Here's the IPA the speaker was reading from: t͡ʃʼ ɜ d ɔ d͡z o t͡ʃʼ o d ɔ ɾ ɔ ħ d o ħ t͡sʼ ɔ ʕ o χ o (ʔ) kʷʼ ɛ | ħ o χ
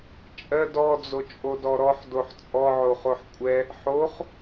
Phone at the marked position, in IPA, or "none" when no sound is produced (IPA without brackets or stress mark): ħ